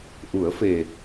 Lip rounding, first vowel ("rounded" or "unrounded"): rounded